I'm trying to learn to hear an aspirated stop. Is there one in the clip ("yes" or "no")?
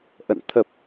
yes